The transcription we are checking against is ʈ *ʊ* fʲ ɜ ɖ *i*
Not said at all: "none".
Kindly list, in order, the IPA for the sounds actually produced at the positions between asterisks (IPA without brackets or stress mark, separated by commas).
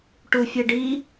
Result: u, i